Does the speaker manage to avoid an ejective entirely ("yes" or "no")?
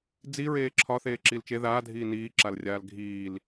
yes